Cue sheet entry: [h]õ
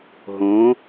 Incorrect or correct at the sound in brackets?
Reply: incorrect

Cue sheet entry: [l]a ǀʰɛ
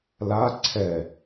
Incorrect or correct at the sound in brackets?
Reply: correct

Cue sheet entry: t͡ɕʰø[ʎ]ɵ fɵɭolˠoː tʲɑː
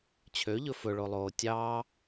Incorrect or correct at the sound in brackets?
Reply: correct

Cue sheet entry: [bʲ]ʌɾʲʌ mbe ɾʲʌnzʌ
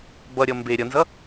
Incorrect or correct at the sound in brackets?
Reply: incorrect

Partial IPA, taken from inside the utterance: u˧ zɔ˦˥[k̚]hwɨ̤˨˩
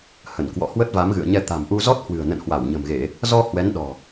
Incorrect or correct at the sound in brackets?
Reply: incorrect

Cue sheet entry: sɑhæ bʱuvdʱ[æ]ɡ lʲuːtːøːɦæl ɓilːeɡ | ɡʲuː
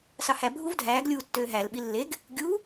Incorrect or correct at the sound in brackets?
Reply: incorrect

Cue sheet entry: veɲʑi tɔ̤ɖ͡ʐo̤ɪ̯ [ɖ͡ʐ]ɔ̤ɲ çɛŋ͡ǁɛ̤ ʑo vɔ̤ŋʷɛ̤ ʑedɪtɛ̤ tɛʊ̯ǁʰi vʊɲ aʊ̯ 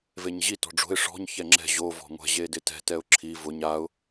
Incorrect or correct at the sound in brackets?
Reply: incorrect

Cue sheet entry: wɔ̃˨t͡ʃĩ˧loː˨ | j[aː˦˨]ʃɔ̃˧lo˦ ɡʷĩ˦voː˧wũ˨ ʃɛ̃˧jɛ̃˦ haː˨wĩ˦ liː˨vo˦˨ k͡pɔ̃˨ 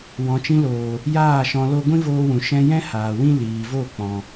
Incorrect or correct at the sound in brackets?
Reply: correct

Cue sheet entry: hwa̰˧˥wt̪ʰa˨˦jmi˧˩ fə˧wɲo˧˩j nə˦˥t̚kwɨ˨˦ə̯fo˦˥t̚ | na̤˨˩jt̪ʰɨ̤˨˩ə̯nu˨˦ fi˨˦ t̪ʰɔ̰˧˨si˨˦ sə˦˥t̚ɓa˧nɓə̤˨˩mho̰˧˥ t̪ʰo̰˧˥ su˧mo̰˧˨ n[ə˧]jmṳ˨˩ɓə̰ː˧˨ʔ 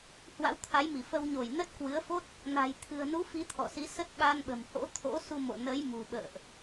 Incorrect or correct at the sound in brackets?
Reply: incorrect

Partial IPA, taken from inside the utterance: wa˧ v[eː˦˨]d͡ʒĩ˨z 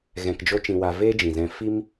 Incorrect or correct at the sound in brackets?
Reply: incorrect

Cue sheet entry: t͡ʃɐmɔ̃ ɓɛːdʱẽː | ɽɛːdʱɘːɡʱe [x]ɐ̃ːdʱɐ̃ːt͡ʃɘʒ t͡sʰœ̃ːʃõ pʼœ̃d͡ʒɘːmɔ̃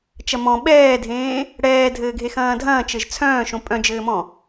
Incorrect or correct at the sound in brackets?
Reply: correct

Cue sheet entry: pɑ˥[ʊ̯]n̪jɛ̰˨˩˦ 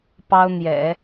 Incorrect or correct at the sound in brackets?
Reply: correct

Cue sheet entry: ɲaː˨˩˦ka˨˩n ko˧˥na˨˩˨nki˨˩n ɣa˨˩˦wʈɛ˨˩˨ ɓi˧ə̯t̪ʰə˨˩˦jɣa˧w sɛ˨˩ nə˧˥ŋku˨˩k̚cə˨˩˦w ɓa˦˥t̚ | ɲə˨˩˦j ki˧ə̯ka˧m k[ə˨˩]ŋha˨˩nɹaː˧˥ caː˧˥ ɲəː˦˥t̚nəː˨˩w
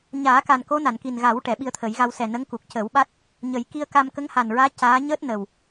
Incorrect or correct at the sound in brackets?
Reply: incorrect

